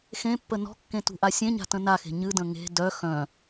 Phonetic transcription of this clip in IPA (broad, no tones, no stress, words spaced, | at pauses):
xẽpːə nɔ̤kːẽ tṳʔasʲẽɲa̤ tə̃naxe̤ ɲɨdə̃ ŋe̤ dœ xœ̃